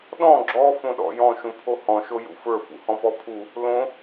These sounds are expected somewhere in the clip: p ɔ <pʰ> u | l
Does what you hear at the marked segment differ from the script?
no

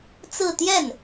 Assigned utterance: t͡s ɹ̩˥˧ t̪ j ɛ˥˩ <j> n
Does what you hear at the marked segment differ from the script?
yes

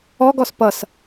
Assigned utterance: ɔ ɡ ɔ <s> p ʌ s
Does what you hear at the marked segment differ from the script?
no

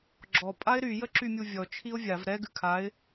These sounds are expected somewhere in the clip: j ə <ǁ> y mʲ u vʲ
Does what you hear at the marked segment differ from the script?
no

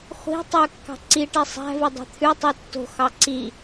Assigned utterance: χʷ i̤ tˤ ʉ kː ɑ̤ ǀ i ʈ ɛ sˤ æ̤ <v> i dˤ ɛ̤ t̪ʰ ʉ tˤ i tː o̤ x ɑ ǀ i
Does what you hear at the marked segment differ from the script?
no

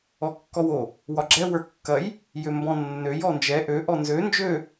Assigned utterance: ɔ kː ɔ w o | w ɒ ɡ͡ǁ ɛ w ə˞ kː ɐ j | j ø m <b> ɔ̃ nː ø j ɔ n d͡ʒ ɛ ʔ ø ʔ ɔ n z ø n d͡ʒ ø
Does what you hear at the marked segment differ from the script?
no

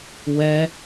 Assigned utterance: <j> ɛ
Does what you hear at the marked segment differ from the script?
yes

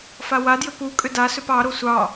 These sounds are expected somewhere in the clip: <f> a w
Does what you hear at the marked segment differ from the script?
no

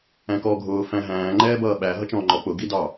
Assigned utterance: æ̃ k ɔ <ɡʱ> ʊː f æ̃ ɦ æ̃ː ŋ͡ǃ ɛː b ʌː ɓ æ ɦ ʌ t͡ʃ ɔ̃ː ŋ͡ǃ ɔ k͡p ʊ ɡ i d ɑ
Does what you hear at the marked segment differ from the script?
no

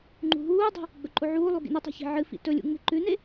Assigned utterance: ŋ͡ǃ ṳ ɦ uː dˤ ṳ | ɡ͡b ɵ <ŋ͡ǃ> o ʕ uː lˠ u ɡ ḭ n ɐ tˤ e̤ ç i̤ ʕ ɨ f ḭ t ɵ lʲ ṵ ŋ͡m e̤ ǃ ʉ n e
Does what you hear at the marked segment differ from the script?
yes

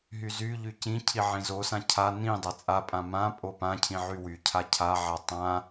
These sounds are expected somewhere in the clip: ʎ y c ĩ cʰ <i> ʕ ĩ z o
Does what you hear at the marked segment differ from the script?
no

